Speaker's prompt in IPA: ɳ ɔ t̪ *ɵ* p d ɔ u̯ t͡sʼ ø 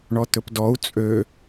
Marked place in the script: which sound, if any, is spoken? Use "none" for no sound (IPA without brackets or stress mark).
ɵ